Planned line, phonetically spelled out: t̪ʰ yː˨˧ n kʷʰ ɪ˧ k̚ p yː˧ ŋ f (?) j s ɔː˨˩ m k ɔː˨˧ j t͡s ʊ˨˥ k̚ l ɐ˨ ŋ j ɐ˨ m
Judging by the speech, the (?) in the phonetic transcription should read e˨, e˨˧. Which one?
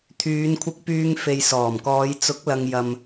e˨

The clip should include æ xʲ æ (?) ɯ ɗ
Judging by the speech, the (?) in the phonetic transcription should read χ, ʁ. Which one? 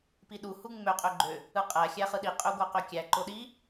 χ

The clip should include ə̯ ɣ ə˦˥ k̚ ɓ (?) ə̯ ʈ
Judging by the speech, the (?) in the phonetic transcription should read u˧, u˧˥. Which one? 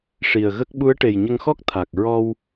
u˧˥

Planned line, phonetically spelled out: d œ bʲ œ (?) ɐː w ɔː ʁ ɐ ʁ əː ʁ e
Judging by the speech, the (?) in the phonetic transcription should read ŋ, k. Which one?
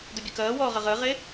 k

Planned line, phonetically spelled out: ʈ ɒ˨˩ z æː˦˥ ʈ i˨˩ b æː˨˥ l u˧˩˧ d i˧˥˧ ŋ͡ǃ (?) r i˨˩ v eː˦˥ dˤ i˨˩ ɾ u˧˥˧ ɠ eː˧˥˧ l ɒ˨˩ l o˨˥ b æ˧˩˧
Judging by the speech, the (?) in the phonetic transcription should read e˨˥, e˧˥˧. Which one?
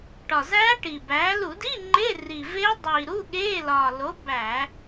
e˧˥˧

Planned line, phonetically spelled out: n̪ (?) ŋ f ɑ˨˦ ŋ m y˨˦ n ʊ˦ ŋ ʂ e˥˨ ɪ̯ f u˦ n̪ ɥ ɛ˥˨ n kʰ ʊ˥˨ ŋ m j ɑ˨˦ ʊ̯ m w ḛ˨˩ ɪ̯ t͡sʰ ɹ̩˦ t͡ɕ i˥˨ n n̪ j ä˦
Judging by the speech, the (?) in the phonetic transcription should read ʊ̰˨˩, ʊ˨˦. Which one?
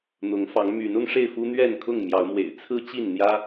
ʊ˨˦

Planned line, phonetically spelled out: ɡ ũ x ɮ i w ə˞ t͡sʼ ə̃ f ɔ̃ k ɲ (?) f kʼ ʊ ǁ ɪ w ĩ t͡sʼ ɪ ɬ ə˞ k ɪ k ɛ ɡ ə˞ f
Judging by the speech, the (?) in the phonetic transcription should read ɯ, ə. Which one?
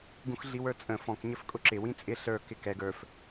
ə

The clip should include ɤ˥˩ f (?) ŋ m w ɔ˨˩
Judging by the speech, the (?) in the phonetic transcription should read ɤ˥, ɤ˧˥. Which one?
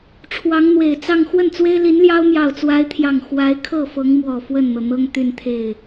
ɤ˧˥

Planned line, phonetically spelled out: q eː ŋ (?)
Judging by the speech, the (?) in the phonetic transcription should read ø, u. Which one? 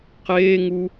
u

